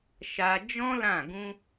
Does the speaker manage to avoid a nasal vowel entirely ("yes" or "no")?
no